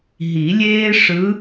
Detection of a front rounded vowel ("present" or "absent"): absent